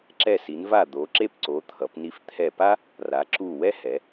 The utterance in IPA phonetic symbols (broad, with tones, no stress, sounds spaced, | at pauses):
ǁ ɛ˧˩ s i˩˧ n v a˧˩ d̪ o˩˧ ǁ e˥˧ p ǀ o˩˧ t̪ʰ ʌ˩˧ p n i˧ f t̪ʰ ɛ˧˩ p a˥ | r a˩˧ ǁ u˧˩ w ɛ˥ h ɛ˩˧